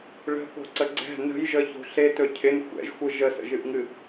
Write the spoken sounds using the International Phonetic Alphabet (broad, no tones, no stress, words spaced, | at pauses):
ɭə̤θo̤ǀə ɡ͡ǀɛ̤ nə̤jʒəço̤ ɬetɵ cʰɪn xʷɛ̰ʒxʷɯ ʒəsə̰ʒɨʔŋɨ